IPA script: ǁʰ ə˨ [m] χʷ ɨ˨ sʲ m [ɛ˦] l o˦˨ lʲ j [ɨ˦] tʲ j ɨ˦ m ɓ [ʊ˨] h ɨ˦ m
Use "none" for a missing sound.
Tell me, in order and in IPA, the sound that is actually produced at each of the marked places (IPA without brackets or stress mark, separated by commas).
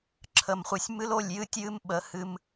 m, ɨ˦, ɨ˦, ə˨